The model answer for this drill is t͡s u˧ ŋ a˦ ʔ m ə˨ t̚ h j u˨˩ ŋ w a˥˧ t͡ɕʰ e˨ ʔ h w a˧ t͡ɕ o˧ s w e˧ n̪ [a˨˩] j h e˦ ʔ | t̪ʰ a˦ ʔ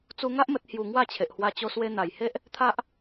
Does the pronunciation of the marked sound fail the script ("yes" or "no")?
no